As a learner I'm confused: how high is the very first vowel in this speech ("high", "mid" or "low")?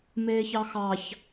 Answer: mid